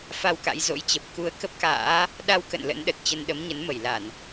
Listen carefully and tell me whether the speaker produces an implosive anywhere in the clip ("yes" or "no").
yes